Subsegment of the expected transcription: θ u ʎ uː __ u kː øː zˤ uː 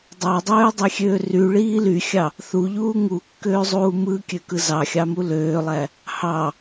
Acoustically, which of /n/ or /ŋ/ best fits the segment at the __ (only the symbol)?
ŋ